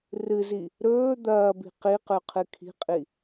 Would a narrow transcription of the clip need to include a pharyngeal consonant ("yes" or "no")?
no